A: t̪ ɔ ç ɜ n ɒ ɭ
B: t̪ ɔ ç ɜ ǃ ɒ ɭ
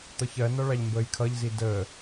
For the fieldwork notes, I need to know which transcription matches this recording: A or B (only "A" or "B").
A